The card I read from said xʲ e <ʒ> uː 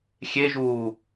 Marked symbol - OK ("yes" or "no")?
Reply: yes